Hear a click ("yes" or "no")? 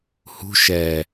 no